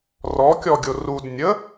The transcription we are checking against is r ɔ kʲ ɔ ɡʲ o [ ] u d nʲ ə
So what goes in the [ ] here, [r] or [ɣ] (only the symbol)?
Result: r